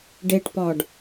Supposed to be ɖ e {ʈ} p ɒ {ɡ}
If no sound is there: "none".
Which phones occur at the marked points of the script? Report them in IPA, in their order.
ʈ, ɖ

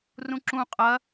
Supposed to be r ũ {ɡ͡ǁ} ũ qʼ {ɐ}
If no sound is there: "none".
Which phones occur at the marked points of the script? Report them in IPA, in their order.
ǁ, ɐ

